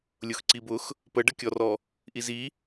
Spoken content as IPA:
lʲʊxǀibʊx | pəɖəkʲɔrɔ | ʔizi

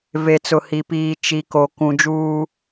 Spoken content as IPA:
ve˨t͡sʊ˨hi˨piː˨ t͡ʃi˨ko˨ kũ˨d͡ʒuː˦

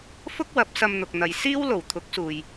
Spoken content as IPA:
fʊ˥k̚wɐ˨˥p̚sɐ˧m n̪ʊ˨k̚n̪ɐ˨˧j siː˥wlo˨˩wt̪ʰʊ˨˥k̚suː˨j

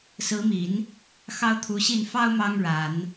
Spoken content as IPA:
sɹ̩˧˥mi˨˩˦n | xɑ˥ʊ̯t̪ʰu˧˥ɕi˥˩n fɑ˥ʊ̯ mɑ˥ŋɻa˨˩˦n

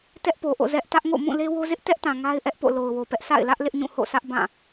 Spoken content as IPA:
tɛ˦ʔpo˨ʔo̰˦˨ zɛ˦ʔ tä˦ʔŋo̰˦˨ mũ˦˨le˦wo˦ zɪ˦ʔtɛ˦ʔtã˨ ŋa˦ɪ̯ ʔɛ˦ʔpo̰˦˨ lo˨ʊ̯wo˨pɛ˦ʔ sʰa̰˦˨ɪ̯lä˦ʔ lɪ˦ʔɲũ˦˨ ho̰˦˨sʰä˦ʔ bã˦˨

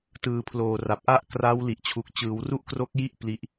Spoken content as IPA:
tɯː˨˩pʰloː˨˩ ra˨˩p̚ʔa˥˩ʔ kraː˦˥wli˨˩ʔt͡ɕʰu˨˩k̚ t͡ɕɯː˩˦wru˥˩ʔkro˦˥k̚ji˥˩ʔ pli˦˥ʔ

